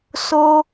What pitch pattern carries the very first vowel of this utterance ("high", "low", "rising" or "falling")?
high